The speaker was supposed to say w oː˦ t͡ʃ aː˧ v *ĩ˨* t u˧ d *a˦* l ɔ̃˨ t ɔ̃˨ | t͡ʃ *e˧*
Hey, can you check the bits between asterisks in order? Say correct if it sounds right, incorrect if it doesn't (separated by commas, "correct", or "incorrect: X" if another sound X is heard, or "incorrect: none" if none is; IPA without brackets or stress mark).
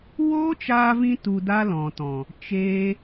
incorrect: ĩ˧, correct, incorrect: eː˧